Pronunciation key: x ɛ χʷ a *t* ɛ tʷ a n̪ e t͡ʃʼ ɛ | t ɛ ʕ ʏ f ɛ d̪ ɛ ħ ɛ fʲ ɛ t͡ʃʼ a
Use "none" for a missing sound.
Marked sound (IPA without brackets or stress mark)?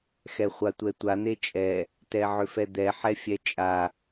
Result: tʷ